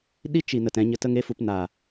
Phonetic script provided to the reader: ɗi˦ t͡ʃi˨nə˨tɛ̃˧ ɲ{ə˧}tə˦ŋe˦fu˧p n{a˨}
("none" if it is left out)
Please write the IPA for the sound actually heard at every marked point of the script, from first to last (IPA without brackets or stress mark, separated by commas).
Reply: ə˧, aː˨